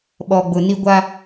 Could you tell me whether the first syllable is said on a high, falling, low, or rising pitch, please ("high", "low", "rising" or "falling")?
low